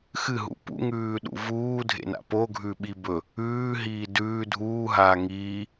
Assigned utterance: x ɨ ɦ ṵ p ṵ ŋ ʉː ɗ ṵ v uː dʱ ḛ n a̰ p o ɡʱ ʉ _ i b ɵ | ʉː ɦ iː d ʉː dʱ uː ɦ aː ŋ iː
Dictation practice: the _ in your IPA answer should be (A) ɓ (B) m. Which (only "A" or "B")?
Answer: A